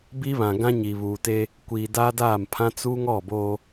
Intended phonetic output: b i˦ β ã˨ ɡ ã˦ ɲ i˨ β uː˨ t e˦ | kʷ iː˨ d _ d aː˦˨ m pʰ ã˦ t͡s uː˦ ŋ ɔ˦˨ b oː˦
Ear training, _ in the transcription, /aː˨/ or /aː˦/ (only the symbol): aː˦